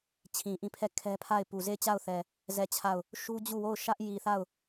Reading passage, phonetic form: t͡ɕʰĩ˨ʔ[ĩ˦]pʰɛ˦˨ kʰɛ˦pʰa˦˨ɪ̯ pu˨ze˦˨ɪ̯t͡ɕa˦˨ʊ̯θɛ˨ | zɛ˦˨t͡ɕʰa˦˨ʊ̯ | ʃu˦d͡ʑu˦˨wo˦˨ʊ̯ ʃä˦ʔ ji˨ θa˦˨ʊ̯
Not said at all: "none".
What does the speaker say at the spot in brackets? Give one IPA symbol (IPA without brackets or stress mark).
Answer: ĩ˦˨